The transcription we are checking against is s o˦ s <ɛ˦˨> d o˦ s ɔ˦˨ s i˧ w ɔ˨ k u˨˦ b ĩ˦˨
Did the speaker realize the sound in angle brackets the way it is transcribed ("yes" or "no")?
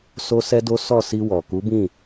no